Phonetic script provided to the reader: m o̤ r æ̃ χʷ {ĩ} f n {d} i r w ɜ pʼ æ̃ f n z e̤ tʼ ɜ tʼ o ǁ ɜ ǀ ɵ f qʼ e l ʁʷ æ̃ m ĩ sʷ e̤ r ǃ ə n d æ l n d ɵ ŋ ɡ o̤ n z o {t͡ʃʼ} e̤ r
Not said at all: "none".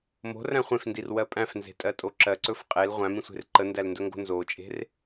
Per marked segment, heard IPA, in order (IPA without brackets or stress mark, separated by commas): ẽ, d, t͡ʃʼ